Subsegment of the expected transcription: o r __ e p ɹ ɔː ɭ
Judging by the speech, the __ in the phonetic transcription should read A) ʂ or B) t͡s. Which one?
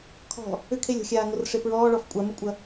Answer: A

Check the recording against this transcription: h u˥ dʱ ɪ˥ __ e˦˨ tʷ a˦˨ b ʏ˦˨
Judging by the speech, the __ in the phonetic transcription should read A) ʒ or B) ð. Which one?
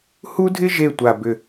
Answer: A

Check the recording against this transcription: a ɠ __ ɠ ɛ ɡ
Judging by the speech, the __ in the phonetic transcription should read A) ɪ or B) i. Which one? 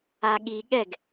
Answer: B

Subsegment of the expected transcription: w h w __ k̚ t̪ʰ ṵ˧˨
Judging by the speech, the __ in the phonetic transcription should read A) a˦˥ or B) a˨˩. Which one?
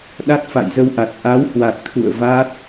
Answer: B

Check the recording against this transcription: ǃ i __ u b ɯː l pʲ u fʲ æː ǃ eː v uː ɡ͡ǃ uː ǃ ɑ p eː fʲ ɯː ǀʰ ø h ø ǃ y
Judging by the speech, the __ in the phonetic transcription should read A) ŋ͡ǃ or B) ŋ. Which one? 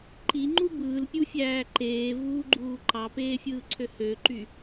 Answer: A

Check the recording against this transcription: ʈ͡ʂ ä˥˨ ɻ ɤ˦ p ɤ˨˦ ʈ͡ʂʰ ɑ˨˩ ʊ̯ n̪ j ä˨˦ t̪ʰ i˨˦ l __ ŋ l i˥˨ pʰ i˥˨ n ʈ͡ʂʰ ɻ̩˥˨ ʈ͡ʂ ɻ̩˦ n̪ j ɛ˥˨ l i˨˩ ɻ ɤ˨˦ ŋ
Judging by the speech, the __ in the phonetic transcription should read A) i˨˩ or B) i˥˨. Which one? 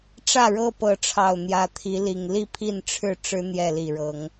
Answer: A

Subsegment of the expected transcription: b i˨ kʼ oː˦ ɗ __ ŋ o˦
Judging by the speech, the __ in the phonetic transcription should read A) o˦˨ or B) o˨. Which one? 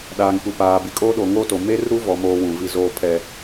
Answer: B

